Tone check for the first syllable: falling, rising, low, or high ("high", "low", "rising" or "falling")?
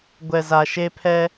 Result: low